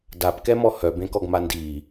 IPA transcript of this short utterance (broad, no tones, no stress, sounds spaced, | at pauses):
d a p k ɛ m ɔ h œ b ẽ k ɔ ɡ m a n d iː